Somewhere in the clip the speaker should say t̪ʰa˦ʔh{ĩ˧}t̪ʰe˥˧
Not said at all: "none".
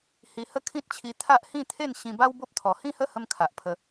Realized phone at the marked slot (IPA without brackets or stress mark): ĩ˥˧